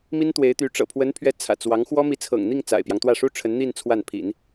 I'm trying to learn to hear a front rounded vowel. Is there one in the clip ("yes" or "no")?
yes